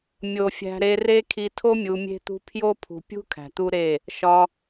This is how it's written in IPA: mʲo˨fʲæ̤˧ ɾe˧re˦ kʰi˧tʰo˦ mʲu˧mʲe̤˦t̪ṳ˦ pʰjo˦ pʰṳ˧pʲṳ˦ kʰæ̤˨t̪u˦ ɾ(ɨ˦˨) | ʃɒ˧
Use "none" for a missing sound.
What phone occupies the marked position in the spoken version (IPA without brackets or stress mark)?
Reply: e˦˨